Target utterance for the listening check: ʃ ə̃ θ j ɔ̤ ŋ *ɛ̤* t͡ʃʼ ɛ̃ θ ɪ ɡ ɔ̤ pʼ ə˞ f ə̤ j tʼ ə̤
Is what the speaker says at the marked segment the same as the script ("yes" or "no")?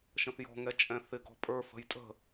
no